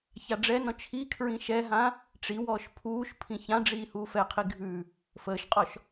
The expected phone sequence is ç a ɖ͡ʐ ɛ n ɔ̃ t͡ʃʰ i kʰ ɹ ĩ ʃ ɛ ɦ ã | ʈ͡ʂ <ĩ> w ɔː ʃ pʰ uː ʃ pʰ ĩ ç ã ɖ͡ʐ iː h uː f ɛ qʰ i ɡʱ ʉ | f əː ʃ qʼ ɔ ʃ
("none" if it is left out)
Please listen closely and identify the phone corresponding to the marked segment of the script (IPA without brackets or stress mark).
i